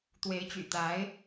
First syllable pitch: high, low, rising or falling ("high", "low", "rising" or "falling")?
rising